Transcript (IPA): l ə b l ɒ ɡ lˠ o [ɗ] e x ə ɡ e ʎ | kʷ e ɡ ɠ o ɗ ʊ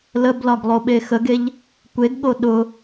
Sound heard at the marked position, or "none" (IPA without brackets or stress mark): ɓ